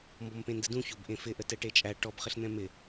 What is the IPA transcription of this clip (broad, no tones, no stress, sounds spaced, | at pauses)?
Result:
m b ɔ m p ẽ n d ə d ũ ç o b ʔ ẽ f ɪ ʔ ə t ɛ ʈ e t͡ʃʼ æ ʈ ɔ b χ ɪ ɬ n̪ ɛ̃ m ɪ